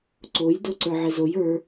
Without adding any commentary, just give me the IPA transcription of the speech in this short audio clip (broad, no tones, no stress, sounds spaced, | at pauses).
ǀ o j d o ǀ ə˞ ʕ e z o j ə˞